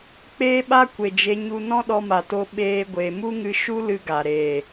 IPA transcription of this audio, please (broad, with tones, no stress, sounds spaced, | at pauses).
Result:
k͡p eː˦ ɓ a˦ kʷ e˨ d͡ʒ e˧ ɲ u˧ n ɔ̃˦ ɗ ɔ˧ m a˨ t o˧ ɓ eː˦ ɡʷ e˧ m u˦ ŋ ɨ˧ ʃ u˦ l ɨ˧ ɡ a˨ ɾ e˨